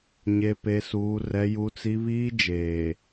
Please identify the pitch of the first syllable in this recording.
high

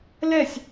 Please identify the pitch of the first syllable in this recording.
falling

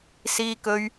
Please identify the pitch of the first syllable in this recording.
high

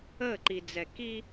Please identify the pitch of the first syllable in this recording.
falling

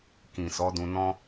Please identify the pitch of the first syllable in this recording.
low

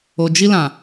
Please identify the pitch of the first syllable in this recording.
low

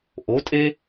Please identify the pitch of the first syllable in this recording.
rising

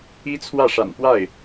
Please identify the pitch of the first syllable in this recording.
high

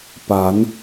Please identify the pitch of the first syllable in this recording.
rising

